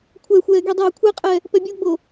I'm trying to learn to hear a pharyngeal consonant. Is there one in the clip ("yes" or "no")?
no